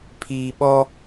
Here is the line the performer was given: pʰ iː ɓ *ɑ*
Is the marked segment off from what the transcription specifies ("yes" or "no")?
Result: yes